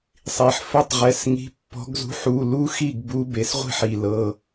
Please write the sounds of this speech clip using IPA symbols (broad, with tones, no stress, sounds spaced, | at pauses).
sˤ i˩ ħ f ə˦˨ tˤ ʁ ɛ˩˧˩ s ŋ i̤˨˦ pː ɔ̤˨˦ ɡ z ṳ˨˦ ħ u˩˧˩ l u˦˥ x i˦˨ ɡ b u˨˦ b e˩ s ʁʷ i̤˦˨ ħ i˩ l ɤ˩˧˩